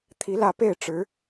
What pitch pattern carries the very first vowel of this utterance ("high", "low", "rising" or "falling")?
rising